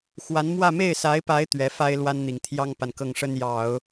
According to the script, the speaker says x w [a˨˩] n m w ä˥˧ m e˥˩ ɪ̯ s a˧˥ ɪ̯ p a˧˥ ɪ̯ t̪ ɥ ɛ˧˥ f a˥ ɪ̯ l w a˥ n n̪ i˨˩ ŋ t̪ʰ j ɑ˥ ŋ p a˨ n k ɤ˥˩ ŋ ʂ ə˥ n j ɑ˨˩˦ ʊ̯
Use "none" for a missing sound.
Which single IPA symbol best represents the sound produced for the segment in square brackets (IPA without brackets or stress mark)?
a˧˥